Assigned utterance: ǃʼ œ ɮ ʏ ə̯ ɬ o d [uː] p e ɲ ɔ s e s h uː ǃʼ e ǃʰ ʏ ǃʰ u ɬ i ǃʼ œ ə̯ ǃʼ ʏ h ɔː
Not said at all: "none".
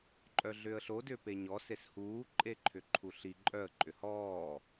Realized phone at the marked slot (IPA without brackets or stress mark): ʏː